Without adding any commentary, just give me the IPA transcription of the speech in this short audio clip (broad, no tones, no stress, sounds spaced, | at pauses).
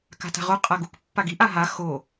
k a̤ t a̤ ʁ o qʼ a ɡ u k pː a ɡ i ʔ a ɦ a x o